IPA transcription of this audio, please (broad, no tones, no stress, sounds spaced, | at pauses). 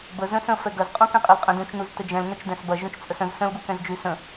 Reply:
b ə z ə̃ s ə̃ f ɛ ɡ ɐ z qʼ ũ k ɛ̃ qʼ ɐ l qʼ ə̃ d ũ t͡ʃ n u z t ə d͡ʒ ɛ̃ l n ə t͡ʃ d ɛ̃ s b ɐ ʒ ũ t͡ʃ t͡sʼ ə s ə̃ z s ə̃ l ɡ u k ɛ̃ z d͡ʒ y s ə̃